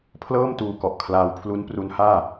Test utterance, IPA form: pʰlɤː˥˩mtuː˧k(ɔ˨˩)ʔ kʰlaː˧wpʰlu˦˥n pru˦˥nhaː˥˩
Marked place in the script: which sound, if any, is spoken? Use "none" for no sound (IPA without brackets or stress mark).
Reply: ɔ˨˩